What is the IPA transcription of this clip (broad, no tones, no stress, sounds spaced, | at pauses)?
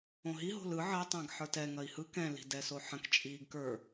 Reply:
õ ɦ i ɦ o̤ l ɯ ʕ ɜ tˤ ɛ̃ ɡ ħ ə˞ t ɛ ŋ ɐ i̯ h ɯ k ɛ̃ l i̤ d ɛ s o ħ ɐ̃ k t͡ʃʼ iː ɡ k ə˞